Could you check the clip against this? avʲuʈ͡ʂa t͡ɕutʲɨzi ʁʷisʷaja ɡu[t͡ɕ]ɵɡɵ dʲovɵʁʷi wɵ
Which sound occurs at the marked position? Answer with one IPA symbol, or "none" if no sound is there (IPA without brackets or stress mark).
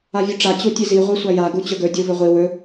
t͡ɕ